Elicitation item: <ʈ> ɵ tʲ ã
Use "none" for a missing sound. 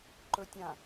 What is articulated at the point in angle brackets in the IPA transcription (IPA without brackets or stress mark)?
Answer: ǃ